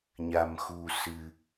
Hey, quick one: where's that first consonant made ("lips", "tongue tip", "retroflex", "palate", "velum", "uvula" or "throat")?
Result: palate